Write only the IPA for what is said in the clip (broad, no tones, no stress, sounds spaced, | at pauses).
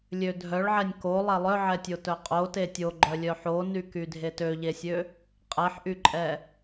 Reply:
lʲ ø dʱ œ ɭ ʕ ɛ nʲ k o lˠ ɛ lˠ œ ʕ ɛ tʲ o t œ qʼ o t e tʲ o ɡ͡ǃ œ lʲ œ ħ o n y k y dʱ e t ø ʎ e sʲ ø | qʼ ɛ ħ ʔ y ǃʼ ɛ